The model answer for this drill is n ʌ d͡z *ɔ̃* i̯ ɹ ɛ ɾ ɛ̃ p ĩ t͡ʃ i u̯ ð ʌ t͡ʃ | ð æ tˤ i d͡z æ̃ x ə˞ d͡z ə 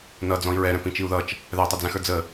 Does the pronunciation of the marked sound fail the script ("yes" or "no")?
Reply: no